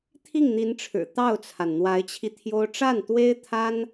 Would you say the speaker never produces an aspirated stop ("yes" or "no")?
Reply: no